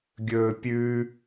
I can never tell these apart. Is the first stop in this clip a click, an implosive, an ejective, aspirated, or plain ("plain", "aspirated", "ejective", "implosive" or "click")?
plain